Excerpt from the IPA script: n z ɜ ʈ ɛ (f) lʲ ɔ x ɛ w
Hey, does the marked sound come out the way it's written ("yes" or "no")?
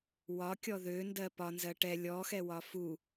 no